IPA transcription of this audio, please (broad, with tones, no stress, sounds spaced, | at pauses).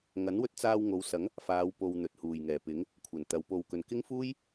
ŋ ɐ˨˥ n w ɵ˧ t̚ t͡s aː˧ w ŋ o˨˧ w s ɐ˨˥ ŋ | f aː˨˧ w p o˨ w n̪ ɵ˨ t̚ h uː˨˩ j ŋ ɛː˨˩ p ɪ˨˥ ŋ | kʷʰ ɐ˨˩ n t̪ ɐ˨˧ w p o˨ w k ɵ˨ n k ɪ˥ ŋ f uː˥ j